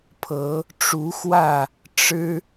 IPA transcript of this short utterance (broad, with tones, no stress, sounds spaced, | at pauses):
pʰ ɤ˨˦ | ʈ͡ʂ u˨˦ x w ä˥˨ | ʈ͡ʂ ɻ̩˦